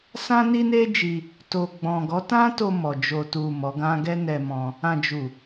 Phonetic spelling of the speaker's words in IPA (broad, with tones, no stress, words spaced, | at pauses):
sã˦ni˦ne˦d͡ʒi˧ | to˨ɡ͡bɔ̃˨ ɡɔ˨˦tã˦to˧ mɔ˨ d͡ʒo˨tu˨ mɔ˨˦ɡã˦ ɡɛ˦nɛ˧mɔ̃˧ | ã˨d͡ʒu˨